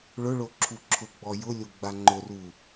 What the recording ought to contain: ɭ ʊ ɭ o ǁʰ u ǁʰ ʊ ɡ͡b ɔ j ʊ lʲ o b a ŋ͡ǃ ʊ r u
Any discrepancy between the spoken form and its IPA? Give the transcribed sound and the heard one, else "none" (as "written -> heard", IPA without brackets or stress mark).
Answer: b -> ɡ͡b